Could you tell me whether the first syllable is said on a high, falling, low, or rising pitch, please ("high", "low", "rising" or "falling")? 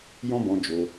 high